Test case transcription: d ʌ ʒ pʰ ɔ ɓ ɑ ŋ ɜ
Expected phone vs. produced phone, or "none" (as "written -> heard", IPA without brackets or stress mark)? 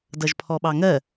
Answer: none